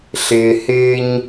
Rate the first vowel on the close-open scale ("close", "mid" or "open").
close